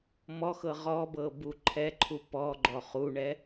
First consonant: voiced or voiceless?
voiced